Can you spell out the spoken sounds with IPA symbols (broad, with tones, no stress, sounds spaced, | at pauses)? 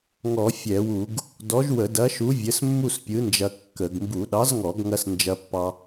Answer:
ŋ ɔ˧˩˧ fʲ ɛ˧˩˧ w u˧˩˧ ɡ | d ɔ˨˥ ʒ w ə˧˩˧ d ɐ˨˥ ʃ u˨˥ vʲ ə˨˥ s mː u˥˧ s pʲ ɯ˨˥ n d͡ʒ ɐ˧ kː ə˧˩˧ ɡ m b u˧˩˧ ɗ ɑ˨˥ z ŋ ɔ˧˩˧ ɡ ŋ ɐ˧ s n d͡ʒ ɐ˧ pː ɑ˧